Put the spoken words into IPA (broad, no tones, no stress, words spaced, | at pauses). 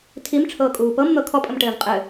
tʰimʈ͡ʂʰɤːkʼuː pɤmn̪ɤ kʰɔpʼəmʈɘːv qʼɘ